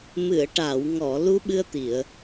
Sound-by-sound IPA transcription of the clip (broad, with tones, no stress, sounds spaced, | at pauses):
m ɨ˨˩˨ ə̯ ʈ a˨˩˨ w ŋ ɔ˨˩˨ l u˧˥ ɓ ɨ˧ ə̯ t̪ i˨˩˨ ə̯